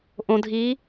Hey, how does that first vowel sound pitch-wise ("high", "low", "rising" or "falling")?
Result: low